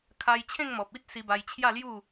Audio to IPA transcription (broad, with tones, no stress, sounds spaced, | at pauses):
kʰ a˧ j t͡ɕʰ ẽ˥˧ ŋ m ɔ˨ p̚ i˦ t̚ s i˧ b a˧ j t͡ɕʰ j a˥˧ l j u˥˧